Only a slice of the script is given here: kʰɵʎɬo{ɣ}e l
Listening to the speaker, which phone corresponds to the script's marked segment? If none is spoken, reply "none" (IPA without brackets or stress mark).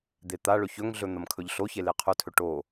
ç